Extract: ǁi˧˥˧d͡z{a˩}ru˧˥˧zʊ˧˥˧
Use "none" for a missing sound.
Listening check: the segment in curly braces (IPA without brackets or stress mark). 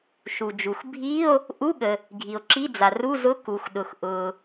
a˩